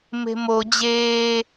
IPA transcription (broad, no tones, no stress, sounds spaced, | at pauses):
m e̤ m o d͡ʑ eː